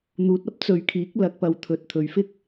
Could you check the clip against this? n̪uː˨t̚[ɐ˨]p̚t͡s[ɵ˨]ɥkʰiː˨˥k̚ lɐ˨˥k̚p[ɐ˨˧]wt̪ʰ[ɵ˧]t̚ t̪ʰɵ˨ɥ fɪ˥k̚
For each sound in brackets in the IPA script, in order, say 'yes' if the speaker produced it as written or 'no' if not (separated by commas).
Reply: no, yes, no, no